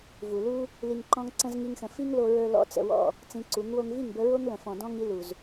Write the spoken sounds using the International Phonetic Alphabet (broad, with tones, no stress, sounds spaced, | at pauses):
v u˨ l u˦ | l i˧ ŋ ǃ ɔ̃˦ ŋ ǀ ə̃˧ z ŋ i˦ ŋ x ə̃˧ f i˦ ŋ l o˧ ɹ ə˞˧ l ɔ̰˦ t͡s ə̰˧ w ɔ̰˦˨ | t͡s ĩ˧ ǀ u˨˦ ŋ w o˧ ŋ v i˦˨ ŋ b ə˧ ɹ o˦ ŋ l ə̃˨ f ɔ̃˨ d ɔ̃˧ ŋ i˧ l u˨ z